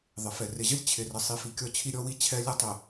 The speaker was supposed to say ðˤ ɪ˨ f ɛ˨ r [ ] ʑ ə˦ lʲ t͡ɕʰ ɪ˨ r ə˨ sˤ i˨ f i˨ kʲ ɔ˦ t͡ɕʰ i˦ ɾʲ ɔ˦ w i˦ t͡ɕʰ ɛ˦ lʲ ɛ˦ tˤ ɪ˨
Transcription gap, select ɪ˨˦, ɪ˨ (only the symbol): ɪ˨